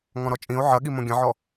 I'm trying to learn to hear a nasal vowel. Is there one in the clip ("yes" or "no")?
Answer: yes